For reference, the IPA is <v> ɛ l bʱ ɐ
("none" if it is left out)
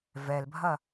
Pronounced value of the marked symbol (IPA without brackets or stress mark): v